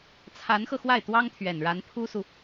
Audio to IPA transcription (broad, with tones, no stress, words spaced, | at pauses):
t͡sʰa˧˥nxɤ˧xwa˥˩ɪ̯t̪wɑ˥ŋ t̪ʰɥɛ˨˩nɻa˧˥n pʰu˥su˨